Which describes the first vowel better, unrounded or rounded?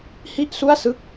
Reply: unrounded